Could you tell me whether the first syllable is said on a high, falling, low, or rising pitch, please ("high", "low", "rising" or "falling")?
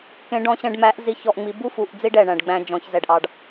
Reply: rising